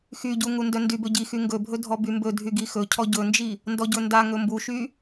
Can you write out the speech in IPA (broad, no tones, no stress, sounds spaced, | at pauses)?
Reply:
x y ɟ u ŋ u n d œ n d y b ɵ ɟ i x y ŋ ɡ ɵ bʱ ɵ dʱ ɔ b y m b ɵ dʱ y ɡ i x ɵ cʰ ɔ ɟ ɵ n d͡ʒ i | n d ɔ ɟ ɵ n d a ŋ ɵ m b u ʃ y